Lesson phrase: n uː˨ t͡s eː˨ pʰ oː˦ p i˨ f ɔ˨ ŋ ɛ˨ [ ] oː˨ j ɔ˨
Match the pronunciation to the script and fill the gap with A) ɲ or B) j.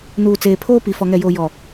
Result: B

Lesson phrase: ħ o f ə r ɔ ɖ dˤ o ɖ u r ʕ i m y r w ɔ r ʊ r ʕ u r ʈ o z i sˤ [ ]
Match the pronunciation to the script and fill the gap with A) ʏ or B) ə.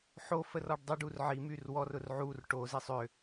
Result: A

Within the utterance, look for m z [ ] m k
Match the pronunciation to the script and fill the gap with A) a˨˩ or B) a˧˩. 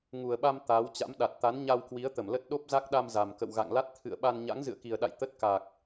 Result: A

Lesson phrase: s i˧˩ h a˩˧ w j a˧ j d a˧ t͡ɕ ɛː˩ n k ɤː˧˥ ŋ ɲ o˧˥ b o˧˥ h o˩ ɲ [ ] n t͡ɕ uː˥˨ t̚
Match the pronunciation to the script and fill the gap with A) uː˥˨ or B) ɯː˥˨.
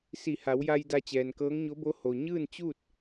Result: B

